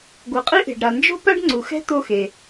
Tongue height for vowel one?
high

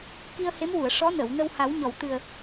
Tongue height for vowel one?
high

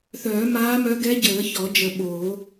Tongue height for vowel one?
mid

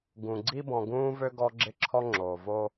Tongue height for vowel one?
high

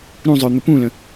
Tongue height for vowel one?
high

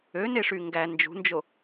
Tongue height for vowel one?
mid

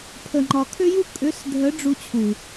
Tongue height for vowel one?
mid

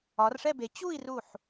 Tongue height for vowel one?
low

